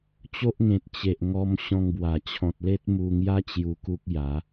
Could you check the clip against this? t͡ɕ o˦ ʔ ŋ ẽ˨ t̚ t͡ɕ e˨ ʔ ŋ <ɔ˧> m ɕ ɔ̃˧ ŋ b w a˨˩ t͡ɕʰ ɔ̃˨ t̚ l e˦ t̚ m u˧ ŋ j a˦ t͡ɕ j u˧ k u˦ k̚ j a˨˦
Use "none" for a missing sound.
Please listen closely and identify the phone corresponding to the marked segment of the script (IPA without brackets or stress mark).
ɔ˧